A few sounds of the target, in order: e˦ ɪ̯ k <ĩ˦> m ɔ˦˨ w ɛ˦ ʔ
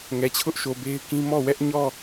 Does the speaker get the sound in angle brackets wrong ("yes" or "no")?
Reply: no